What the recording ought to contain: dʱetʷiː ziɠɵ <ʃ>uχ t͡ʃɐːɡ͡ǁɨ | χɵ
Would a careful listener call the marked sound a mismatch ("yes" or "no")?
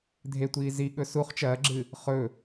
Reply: yes